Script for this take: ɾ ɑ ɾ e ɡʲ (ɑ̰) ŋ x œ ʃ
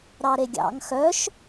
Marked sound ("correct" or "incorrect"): correct